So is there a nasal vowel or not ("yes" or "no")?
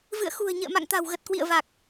no